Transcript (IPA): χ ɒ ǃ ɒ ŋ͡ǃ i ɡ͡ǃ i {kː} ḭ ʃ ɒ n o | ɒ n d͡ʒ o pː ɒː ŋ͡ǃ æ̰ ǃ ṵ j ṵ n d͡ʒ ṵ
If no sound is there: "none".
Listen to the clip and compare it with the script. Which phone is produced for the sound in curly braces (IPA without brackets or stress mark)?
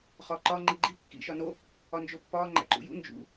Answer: kː